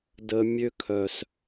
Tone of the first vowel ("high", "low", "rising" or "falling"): high